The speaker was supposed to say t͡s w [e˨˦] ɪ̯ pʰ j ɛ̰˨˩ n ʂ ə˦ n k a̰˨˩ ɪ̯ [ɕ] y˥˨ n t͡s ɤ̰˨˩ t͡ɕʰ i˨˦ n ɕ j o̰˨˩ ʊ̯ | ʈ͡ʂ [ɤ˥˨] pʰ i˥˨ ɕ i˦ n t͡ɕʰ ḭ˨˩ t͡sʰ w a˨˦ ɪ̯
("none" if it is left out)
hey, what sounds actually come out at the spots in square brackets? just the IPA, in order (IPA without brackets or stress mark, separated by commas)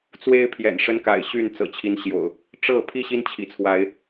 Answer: e˦, ɕ, ɤ˥˨